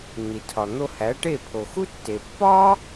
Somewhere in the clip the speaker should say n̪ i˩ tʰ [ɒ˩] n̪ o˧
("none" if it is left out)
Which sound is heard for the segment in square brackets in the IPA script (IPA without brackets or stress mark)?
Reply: ɒ˩